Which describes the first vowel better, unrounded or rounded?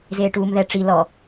unrounded